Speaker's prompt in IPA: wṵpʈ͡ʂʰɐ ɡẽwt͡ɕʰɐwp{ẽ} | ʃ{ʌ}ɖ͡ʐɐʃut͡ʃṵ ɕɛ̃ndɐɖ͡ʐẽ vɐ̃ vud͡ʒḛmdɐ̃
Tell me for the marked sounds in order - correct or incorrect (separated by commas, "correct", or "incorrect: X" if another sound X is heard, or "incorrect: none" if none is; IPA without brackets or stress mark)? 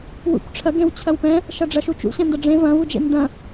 incorrect: ɛ̃, correct